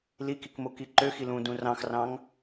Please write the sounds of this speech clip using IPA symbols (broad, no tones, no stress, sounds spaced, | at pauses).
l i k i k m o k i ǃ ø x i l ũ d ũ r ɑ̃ x r ɑ̃ ŋ